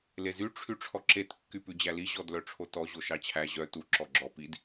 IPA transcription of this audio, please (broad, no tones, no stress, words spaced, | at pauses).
lezy ʈ͡ʂʰyʈ͡ʂʰɔǁet kːypʉd͡ʑæli ʑɔdlœʈ͡ʂʰotɔ ʑoʃɑt͡ɕʰæ ʑœ tu ǁɔɡ͡ǁɔ pid